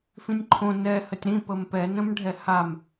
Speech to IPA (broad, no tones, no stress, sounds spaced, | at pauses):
f ĩ nʲ ǃʰ õ n ɛ h ə tʲ ɾ ĩ p ə m p ɛ n ə̃ m ɖʱ ɛ h a m